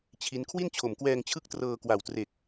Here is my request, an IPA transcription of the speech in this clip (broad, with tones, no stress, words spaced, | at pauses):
t͡ɕʰi˦˥n kʰwi˥˩nt͡ɕʰo˨˩mkwɛː˧ŋt͡ɕʰɯ˦˥k̚ trɤː˧kwa˨˩w tre˨˩k̚